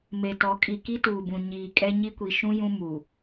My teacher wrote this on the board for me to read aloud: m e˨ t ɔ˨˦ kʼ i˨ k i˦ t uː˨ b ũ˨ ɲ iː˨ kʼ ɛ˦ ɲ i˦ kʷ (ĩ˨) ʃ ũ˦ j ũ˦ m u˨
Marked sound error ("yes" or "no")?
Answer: yes